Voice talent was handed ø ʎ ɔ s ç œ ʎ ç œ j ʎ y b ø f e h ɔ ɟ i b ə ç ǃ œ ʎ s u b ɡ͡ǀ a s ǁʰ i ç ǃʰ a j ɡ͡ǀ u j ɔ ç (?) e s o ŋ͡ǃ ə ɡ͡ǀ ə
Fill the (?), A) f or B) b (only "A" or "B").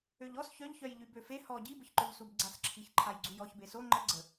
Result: B